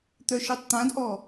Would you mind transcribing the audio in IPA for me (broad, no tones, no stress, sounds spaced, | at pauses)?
t̪ œ ʃ œ tˤ t̪ ã d ʔ ɔ